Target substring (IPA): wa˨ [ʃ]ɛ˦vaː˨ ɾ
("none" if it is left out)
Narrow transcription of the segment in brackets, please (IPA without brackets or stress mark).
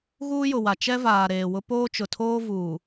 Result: t͡ʃ